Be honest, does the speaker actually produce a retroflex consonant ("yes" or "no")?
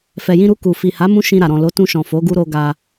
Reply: no